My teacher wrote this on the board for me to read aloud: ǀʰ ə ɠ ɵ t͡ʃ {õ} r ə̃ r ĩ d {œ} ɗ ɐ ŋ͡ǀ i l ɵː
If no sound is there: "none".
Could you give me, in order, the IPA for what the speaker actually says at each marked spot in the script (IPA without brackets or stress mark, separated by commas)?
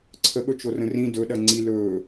o, ɵ